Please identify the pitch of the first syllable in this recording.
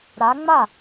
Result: rising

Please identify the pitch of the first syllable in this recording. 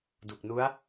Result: low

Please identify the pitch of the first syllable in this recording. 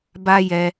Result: high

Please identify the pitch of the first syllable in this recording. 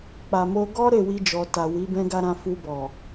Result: low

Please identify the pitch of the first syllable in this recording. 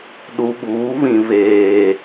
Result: low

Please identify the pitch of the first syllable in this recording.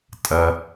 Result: low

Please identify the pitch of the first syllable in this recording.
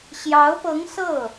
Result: rising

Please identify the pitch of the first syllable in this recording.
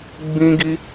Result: high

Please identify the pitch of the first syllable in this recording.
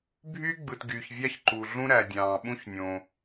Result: high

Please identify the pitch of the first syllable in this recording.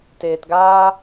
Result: low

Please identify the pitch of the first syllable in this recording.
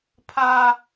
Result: high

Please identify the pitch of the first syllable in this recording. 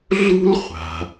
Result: high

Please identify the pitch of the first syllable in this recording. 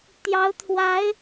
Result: rising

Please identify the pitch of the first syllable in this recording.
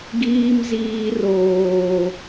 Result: high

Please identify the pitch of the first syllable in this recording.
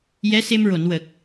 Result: rising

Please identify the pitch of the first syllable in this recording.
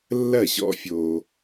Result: falling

